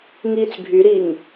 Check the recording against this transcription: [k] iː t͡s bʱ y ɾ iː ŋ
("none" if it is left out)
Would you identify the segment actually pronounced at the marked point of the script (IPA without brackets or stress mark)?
ŋ